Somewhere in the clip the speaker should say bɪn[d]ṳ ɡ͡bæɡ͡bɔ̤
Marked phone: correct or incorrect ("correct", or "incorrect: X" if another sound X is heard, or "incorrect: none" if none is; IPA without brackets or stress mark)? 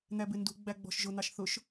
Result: correct